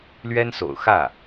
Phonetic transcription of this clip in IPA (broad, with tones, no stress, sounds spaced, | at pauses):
l ɥ ɛ˥ n s o̰˨˩ ʊ̯ x ä˥˩